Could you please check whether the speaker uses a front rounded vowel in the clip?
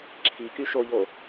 yes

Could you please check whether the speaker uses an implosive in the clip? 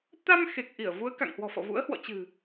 no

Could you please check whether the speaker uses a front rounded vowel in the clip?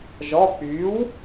yes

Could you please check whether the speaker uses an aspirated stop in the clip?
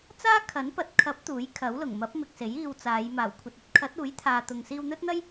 yes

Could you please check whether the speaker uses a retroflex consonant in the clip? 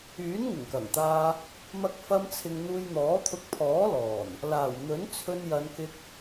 no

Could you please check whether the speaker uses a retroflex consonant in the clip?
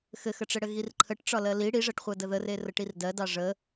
yes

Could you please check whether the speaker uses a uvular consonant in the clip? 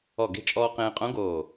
yes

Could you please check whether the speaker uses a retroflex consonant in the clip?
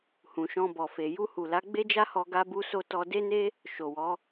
no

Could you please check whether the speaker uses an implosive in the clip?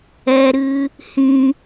no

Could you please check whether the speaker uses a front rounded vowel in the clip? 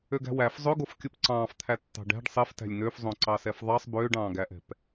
yes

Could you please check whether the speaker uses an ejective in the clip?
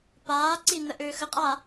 yes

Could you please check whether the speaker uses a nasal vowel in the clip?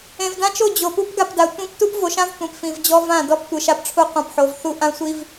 yes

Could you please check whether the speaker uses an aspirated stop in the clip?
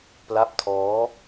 yes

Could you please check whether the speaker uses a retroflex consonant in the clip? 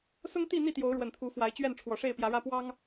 yes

